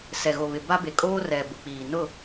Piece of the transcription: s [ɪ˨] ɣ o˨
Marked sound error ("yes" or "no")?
yes